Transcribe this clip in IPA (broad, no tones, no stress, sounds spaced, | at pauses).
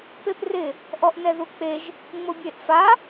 p e p r ɪ | ʔ ɔ ʔ n ɛ ð u k͡p e ʒ | ŋ͡m ʊ bʲ e ʔ f a